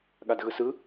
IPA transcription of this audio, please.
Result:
ɠ a d ɣ ɯ s ɯ

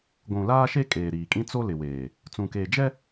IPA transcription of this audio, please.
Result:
ɡʷ ũ˨ l aː˦ ʃ e˦ kʼ eː˨ ɾ iː˨ kʼ ĩ˦ t͡s o˦ l ɪ˨ w eː˨ | t͡s ũ˨ k e˨ d͡ʒ ɛ˦

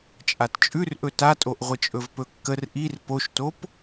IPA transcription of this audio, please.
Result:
t͡ʃʼ a t t͡ʃʼ ʉ r ʔ ɵ t a tʼ o ʔ ʁʷ ə t͡ʃʼ ɵ v p ɵ kː ə r ʔ i r p o ʃ t o p

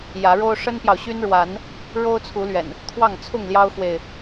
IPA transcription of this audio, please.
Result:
j ä˨˦ ɻ o˦ ʊ̯ ʂ ə˦ n p j ɑ˨ ʊ̯ ɕ y˦ n ɻ w a˨˦ n | ɻ o˦ ʊ̯ t͡sʰ u˨˦ l ɥ ɛ̰˨˩ n | t̪ʰ w ɑ˥˨ ŋ t͡sʰ ʊ˥˨ ŋ l j ɑ˦ ʊ̯ x w e˨ ɪ̯

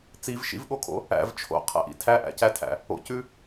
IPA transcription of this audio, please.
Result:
t͡s i v ʃ ḭ v ɠ o kʰ o̰ | æ̰ v t͡ʃʰ o̰ qʰ æ̰ ʔ ḭ tʰ æ ʔ æ̰ c æ tʰ æ̰ | o̰ c ʉ

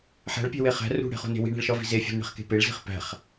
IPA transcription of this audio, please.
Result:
ħ æ̤ ɭ pʲ æ̤ w e χ æ̤ r ṳ ɽ e̤ χ o̤ n e̤ w i̤ ɳ æ̤ ɭ ʃ ɒ v i̤ z e fʲ æ̤ n ɳ e̤ χ k e̤ p e ɭ z i̤ χ p æ̤ χ

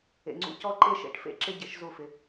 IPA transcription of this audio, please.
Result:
ḛ˨ ŋ͡ǀ ṵ˦ c ɔ˦ ǃ e˦ ʃ ḛ˨˦ ʈ f ḛ˦ ǁ ɪ˦ ɟ ɪ˨˦ ʃ z u˦˨ f ɪ˦

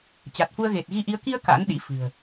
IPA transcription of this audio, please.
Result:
t͡ɕ a˨˩ t̚ f u˧ ə̯ ɣ e˨˩ t̚ ɣ i˧ ʔ i˨˦ ə̯ k i˧ ə̯ k a̰˧˥ n ɗ ḭ˧˥ f ɨ̤˨˩ ə̯

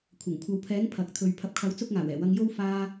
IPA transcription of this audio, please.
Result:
kʷʰ ɐ˨˩ ŋ kʷʰ ɐ˨˧ w pʰ ɛː˨˥ ŋ pʰ ɐ˨ k̚ t̪ʰ ɵ˨ ɥ pʰ ɐ˨˥ p̚ kʰ ɐ˨˥ w t͡s ʊ˥ k̚ ŋ aː˨˩ w ɛː˨˩ w ɐ˧ ŋ j o˥ w f aː˧

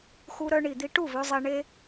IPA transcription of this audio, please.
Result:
x u˧ ɾ œ˧ ɳ i˨ d̪ i˧ ʈ u˦˨ v ø˧ zˤ e˧ ɳ e˧

